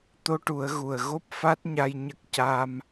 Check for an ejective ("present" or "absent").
absent